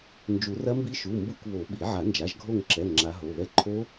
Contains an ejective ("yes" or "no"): no